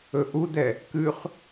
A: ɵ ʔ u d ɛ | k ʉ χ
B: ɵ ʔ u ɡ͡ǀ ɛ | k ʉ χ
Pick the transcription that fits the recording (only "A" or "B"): A